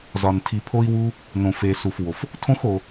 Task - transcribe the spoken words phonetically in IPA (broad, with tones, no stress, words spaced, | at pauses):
zɒ˧ntʰi˧pʰo˥i̯wu˥ | nõ˧fe˧su˧fwo˧f | tʰõ˥xo˧